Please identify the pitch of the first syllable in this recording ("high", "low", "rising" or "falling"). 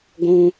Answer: high